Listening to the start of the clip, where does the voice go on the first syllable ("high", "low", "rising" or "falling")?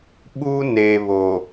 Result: high